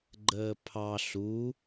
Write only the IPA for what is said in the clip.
ɡ͡ǃəːpʰɑ ɬu

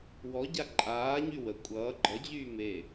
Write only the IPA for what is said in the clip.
wɔɟa ǃʼaːɲy wə kʷʼʌː ɡ͡ǃʌd͡ʑyː me

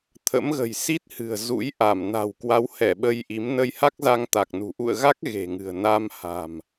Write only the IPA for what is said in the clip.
t̪ʰə̰˧˥mɣə̤˨˩jsi˦˥t̚ hɨ̤˨˩ə̯ zṵ˧˥jʔa˧˩m na̤˨˩w kwa˨˦w hɛ˧˩ ɓə˧jʔi˨˦m nə˧jha˦˥k̚za˧ŋ t̪a˨˩k̚nṳ˨˩ ʔṵ˧˨ə̯ɣa˦˥k̚ ɣe̤˨˩ŋɨ̤˨˩ə̯ na˧mha̤˨˩m

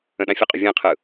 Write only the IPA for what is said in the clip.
ə̃ɗãfʲəqʼʏ vʲɛ̃qʰɯ

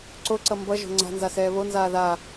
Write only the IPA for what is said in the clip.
ǀoǀʌ mbʌ ʒo̤ŋ͡ǀa̤nza sɛːβonzaː ða

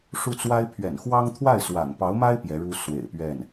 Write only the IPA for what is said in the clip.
ʂu˥˩t͡swa˥ɪ̯ pʰɥɛ̰˨˩nxwɑ˥ŋ t̪ʰwa˥˩ɪ̯swa̰˨˩npɑ˧˥ʊ̯ma˥ɪ̯ pjɛ˧˥ɻu˥ swḛ˨˩ɪ̯pɥɛ˥˩n

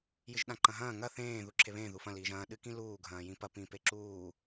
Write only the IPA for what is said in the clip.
jɨʒɗãǃɐ̃ɦɐ̃ː ŋɐ θẽː ðuǁʰeβẽː ðufɐ̃ liːʒɐ̃ː ɗɨkĩluː ɡʱɐ̃ːjĩpɐ pĩpeǁuː

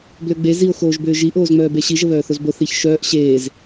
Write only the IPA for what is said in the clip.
bløɡ͡be zio̯ xoːʒbʏːʒi ʔoːzŋ͡mœːbeɕi ʒəβœːθozbo θiç ʃœːʔ ɕeːz

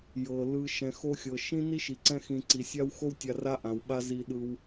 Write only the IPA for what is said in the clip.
jɤ˩ lɯ˨ ʃɛ̃˨xo˦xʲɤ˨ ʃĩ˥ni˥ʃi˩ǀɛ̃˦ xĩ˨ǀi˩sʲa˥w xo˦wtʲa˨ ra˥ʔã˩wɓa˦ zi˨ɗɯ˨w

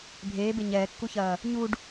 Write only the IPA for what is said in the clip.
bʱeː beɲɛːkːuçɐː | ɲuɖ

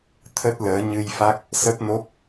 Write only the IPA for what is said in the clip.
t̪ʰə˦˥t̚ləː˨˦ ɲɨ˧jfa˦˥k̚ | sə˦˥p̚no˦˥p̚

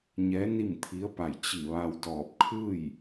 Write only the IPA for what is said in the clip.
ɲɛː˧˥ ni˥˨mt̪ʰi˧˥ə̯pa˧˩j t͡ɕi˧˩ʋa˧w dɔː˧˩p̚kʰɯː˥˨j

